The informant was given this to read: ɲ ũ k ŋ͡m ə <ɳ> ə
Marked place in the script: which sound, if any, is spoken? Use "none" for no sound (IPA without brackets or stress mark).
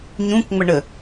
ɳ